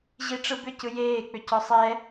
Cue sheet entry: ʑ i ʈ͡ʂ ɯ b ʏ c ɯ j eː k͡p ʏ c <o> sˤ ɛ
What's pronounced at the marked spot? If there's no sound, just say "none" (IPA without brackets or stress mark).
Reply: ɔ